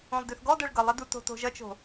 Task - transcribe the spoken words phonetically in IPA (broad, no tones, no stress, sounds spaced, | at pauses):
õ lˠ d ø θ ɡ ɔ d ɜ ɭ ɡ ʌ lˠ ʌ d u t o̤ t o̤ ʒ ʌ t͡ʃ o̤